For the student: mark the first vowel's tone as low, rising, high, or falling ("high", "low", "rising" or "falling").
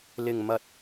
low